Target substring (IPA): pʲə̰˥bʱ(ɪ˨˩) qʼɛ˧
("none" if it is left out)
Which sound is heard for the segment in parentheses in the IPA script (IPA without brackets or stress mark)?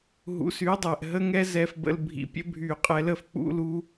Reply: y˨˩